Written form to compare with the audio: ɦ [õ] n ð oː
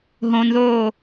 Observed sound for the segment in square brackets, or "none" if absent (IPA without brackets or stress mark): õ